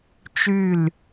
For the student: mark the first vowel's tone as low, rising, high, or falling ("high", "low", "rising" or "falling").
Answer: falling